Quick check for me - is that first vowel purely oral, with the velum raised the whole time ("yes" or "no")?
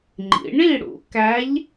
yes